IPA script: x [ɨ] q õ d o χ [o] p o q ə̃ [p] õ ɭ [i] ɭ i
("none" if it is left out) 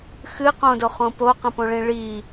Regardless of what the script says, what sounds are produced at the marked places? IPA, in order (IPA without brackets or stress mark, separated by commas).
ɨ, õ, p, ĩ